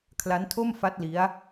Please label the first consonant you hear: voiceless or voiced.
voiceless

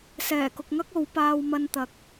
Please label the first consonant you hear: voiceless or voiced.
voiceless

